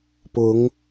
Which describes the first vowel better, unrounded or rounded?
rounded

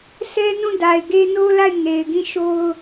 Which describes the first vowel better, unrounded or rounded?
unrounded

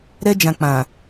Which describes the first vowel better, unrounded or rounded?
unrounded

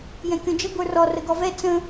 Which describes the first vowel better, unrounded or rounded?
unrounded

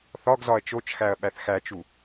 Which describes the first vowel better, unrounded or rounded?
rounded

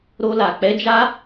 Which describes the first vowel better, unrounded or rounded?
rounded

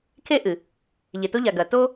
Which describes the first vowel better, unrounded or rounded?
unrounded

